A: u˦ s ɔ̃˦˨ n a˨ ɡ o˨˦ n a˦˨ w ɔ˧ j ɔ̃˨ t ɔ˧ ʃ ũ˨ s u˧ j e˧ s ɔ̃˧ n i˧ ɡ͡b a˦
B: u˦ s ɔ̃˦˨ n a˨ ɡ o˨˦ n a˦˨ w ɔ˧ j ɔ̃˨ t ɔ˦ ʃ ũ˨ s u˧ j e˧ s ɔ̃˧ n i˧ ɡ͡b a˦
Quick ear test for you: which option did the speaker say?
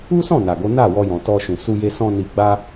A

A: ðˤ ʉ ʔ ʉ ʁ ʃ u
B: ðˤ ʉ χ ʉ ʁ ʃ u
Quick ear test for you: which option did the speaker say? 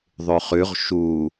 B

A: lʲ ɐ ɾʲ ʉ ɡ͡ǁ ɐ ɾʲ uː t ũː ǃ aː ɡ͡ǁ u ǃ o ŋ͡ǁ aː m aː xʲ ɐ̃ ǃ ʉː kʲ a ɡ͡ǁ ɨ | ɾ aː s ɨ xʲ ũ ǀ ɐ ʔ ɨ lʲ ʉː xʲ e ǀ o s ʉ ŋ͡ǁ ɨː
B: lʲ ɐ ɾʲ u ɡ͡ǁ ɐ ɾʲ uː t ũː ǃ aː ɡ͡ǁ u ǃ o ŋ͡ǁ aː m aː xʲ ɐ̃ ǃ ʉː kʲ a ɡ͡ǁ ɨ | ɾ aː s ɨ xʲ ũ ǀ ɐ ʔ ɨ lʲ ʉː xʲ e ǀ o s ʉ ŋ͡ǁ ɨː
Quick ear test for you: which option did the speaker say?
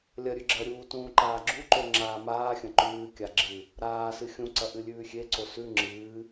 A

